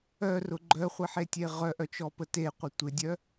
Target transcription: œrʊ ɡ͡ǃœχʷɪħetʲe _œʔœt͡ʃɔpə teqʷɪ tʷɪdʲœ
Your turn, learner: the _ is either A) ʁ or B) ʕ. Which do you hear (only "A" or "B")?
A